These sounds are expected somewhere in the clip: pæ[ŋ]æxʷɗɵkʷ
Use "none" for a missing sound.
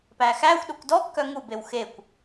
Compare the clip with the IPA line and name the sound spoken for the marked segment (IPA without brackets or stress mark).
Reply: x